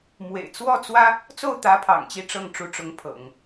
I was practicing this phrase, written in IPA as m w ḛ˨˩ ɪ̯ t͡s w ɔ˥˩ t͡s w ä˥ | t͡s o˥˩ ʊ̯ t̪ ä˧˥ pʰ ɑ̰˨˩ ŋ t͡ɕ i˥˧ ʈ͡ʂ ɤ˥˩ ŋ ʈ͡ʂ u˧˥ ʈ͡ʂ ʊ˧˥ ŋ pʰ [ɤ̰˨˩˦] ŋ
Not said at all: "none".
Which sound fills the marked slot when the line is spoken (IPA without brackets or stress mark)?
ɤ̰˨˩˦